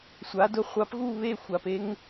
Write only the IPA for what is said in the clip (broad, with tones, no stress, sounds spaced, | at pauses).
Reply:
sʷ a˩˥ d ʊ˧ χʷ a˩˥ p ɣ u˥˩ β e˥˩ xʷ a˩ p e˧ ŋ